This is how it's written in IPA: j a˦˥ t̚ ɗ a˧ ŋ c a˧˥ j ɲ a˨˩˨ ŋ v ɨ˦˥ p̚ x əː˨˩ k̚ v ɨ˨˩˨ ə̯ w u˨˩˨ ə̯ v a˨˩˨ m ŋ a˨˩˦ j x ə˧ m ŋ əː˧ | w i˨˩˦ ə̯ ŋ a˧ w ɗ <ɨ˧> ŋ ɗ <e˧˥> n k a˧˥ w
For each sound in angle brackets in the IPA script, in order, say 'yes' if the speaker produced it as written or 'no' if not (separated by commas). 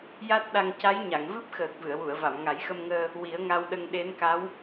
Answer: no, yes